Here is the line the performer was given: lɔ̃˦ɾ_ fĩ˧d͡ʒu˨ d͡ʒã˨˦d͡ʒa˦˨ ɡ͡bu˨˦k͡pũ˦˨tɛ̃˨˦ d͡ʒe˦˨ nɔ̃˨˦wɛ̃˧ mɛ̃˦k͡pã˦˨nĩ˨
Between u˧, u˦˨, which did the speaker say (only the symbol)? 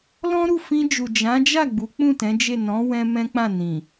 u˦˨